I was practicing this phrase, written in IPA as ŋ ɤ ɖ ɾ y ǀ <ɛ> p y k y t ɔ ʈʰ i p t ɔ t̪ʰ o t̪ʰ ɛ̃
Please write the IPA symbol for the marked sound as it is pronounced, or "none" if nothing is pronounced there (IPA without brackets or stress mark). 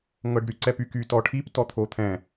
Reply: ɛ